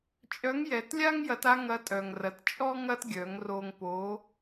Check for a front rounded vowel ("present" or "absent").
present